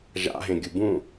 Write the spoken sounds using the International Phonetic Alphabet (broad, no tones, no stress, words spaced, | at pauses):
ʒa̰ɦẽɡʲu bũ